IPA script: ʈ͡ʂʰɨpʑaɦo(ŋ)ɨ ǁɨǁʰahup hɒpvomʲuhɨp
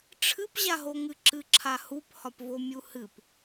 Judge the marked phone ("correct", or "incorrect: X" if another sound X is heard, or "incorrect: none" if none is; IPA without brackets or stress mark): correct